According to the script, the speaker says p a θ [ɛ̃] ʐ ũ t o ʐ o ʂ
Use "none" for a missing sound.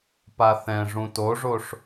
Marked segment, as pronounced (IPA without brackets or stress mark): ɛ̃